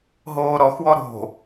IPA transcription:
ɦ oː ɾ ɔ x w ɔ ɾ o̤

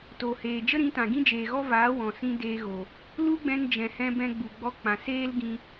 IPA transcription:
t o˨ h eː˨ d͡ʒ ə˦ ɾ ĩ˨˦ t ã˨ ɡ ĩ˦ d͡ʒ eː˨ ɣ ɔ˦ v aː˨˦ w ɔ̃˨ s ĩ˦ d eː˧ ɣ o˨ | l u˦ ɡ͡b ɛ̃˧ n d͡ʒ ɛ̃˨ h ɛ̃˧ b ɛ̃˧ ɡ͡b u˨ ɡ͡b ɔ˧ k͡p ã˨ s eː˦ l ɡ ĩ˧

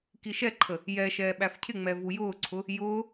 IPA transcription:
k i ʃ ɛ ǃʰ ə | j ɛ ʃ ɛː ɓ æ f cʰ ɪ ŋ͡m ɛ v u j ʊː ǀʰ ʊ | j ʊː

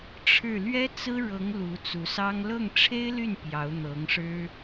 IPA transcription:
ʈ͡ʂʰ ɻ̩˥˩ l ɥ ɛ˥ t͡s ɹ̩˥ ɻ ɤ˧˥ ŋ l u˧˥ t͡s u˧˥ s ɑ˥ ŋ l ɤ˥˩ ŋ ʈ͡ʂʰ e˥ ɪ̯ l y˥˩ n p j ɑ˧˥ ʊ̯ n̪ ɤ˧˥ ŋ ʂ ɻ̩˥

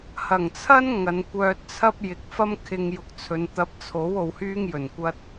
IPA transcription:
h ɐ˨˩ ŋ t͡sʰ ɐ˥ n ŋ ɐ˨˧ n kʷ œː˧ t̚ t͡sʰ ɐ˥ p̚ j ɪ˨˥ k̚ f ɐ˥ m kʰ ɪ˧ ŋ j ʊ˨˥ k̚ t͡sʰ ɵ˨˧ n t̪ ɐ˨˥ p̚ t͡sʰ o˨˥ w o˨˧ w h yː˥ ŋ j ɵ˨˩ n kʷ ɐ˥ t̚

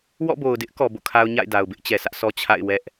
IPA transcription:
w ɔ̰˦˨ b o˨ ʊ̯ d ɪ˦ ʔ k ɔ˨ b o̰˦˨ kʰ a˦ ʊ̯ ɲ a̰˦˨ ɪ̯ d a˨ ʊ̯ b ɪ˦ ʔ t͡ɕ ɛ˨ sʰ ä˦ ʔ s ɔ˦ t͡ɕʰ a̰˦˨ ɪ̯ w ɛ˦ ʔ

